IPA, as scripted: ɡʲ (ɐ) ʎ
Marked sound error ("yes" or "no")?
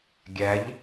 yes